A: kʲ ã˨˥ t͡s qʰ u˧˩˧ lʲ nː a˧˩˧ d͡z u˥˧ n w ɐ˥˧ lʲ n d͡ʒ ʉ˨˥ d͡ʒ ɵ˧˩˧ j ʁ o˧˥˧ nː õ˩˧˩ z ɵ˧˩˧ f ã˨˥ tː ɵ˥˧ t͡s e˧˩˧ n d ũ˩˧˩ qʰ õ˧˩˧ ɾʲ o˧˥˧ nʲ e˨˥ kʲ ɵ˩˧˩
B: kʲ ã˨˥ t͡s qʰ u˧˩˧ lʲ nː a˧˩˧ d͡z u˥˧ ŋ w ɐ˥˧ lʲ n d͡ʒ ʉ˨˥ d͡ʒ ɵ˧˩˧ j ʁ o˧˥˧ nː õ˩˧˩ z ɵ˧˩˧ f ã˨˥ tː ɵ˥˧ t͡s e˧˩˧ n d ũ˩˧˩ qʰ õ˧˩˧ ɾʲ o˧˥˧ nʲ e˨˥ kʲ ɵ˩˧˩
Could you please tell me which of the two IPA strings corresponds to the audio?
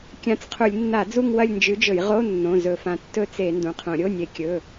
B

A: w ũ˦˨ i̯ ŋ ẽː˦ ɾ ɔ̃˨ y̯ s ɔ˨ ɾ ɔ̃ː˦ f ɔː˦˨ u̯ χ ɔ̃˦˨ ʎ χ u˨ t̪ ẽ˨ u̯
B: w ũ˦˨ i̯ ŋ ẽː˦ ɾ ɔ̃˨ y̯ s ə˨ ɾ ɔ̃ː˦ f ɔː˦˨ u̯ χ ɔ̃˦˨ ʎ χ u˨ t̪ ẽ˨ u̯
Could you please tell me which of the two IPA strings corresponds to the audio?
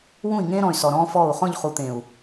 A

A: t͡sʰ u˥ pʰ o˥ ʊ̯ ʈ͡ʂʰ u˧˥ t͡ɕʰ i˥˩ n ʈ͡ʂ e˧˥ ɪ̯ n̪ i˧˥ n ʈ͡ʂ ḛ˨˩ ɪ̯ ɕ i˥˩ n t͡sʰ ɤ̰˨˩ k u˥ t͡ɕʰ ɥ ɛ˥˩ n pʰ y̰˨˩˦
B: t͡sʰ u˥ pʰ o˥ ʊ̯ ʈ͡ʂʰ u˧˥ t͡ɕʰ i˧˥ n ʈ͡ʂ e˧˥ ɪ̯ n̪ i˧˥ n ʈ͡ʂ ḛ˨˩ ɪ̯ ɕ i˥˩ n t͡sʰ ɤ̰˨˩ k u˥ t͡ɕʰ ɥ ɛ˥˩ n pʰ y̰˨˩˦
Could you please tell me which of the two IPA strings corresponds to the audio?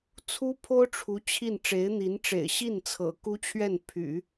A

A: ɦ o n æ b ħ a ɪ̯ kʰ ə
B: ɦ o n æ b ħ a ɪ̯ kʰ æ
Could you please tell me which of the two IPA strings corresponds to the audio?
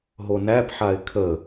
A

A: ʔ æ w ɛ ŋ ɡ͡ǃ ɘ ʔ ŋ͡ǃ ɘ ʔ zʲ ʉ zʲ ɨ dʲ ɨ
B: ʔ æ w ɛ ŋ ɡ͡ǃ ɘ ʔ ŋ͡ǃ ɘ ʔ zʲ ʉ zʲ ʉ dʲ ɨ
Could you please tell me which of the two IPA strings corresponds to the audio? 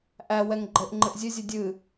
A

